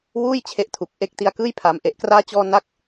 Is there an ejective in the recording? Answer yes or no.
no